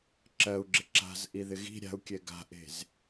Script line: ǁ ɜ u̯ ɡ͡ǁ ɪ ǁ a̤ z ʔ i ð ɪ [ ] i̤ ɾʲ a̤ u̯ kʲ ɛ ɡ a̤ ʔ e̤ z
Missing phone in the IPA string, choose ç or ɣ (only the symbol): ɣ